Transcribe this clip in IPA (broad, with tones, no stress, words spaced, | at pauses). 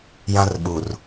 jã˦rɓu˨r